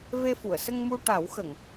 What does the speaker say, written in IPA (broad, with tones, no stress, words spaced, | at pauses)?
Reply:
ve˧fu˨˩˨ə̯sə˧ŋmu˧ ʈa˨˩˦wxə˨˩˨ŋ